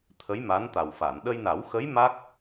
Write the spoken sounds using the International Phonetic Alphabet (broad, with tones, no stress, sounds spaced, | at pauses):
t̪ʰ ə˧˥ j m a˧˥ n t̪ a˨˩ w f a˨˩˨ n ɗ ə˧ j n a˨˩˦ w x ə˧˥ j m a˦˥ k̚